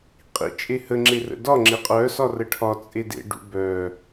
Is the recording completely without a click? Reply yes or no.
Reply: no